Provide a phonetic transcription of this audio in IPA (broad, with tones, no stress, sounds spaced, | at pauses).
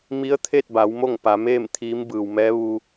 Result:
m i˧˥ ə̯ t̪ʰ e˥˨ t̚ b a˩˧ w m o˥˨ ŋ p a˩˧ m eː˥˨ m t̪ʰ iː˧˥ m b ɯː˩ w m ɛː˧˥ ʋ u˧